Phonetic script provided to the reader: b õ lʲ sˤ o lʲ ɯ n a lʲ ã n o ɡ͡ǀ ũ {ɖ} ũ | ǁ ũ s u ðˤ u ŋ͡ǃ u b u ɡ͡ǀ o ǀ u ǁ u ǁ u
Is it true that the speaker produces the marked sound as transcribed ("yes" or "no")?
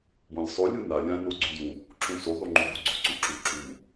no